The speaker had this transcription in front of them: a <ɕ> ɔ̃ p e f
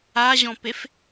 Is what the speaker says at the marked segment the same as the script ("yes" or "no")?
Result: no